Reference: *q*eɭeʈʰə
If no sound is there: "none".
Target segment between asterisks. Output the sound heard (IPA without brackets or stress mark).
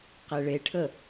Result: q